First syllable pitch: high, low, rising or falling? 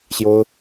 high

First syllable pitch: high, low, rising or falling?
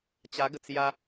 rising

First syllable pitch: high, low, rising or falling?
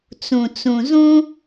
low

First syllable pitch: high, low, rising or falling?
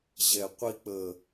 low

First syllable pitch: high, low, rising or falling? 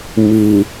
low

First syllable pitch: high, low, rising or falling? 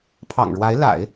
low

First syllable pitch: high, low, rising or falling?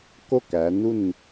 falling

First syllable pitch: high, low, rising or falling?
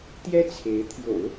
high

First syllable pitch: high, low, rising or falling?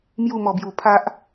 falling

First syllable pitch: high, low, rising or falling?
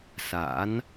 rising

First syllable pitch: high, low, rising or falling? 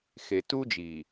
low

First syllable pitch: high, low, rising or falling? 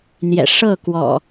low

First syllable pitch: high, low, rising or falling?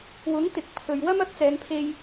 rising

